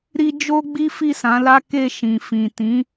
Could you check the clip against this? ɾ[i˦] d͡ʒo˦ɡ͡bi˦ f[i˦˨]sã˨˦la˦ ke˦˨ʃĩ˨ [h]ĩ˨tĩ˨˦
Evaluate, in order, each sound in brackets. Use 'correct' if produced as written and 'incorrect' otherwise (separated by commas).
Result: correct, correct, incorrect